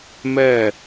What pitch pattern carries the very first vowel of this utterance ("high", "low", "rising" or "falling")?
falling